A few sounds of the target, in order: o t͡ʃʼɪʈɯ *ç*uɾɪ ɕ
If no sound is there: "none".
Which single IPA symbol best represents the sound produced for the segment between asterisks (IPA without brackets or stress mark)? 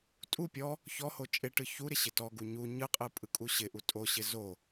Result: ç